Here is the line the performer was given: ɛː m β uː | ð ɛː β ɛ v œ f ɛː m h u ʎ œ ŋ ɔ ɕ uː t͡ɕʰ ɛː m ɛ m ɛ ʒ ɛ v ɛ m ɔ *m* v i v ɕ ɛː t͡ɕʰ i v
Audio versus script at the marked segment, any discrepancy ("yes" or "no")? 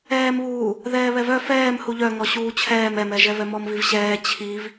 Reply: no